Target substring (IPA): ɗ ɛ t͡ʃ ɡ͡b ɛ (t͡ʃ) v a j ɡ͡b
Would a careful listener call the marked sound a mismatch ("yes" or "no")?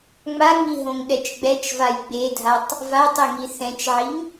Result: no